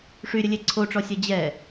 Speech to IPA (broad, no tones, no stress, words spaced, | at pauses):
ʂyɾʲəlʲe ǀʰoʈ͡ʂɔsʲɜ d͡ʑɛ